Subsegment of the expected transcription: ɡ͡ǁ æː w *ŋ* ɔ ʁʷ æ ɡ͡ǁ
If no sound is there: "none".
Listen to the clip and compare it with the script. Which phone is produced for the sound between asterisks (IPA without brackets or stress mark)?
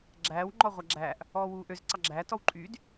ŋ͡ǃ